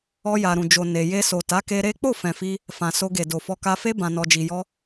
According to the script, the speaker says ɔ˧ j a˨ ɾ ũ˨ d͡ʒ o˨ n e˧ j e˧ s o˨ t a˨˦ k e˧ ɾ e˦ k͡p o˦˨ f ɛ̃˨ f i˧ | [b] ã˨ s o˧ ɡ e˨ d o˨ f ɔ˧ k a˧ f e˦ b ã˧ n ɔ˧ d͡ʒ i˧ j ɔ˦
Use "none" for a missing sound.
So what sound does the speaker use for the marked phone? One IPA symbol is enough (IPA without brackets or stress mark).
f